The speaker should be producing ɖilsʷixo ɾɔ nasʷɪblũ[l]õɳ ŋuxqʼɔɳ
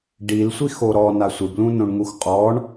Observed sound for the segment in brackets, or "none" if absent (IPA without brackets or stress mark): n